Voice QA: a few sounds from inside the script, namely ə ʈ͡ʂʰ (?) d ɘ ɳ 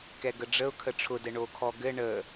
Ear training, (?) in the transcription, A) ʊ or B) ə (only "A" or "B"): A